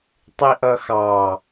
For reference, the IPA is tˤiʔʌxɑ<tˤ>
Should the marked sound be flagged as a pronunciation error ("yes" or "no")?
yes